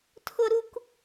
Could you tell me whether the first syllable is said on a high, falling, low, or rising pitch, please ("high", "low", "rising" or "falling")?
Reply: high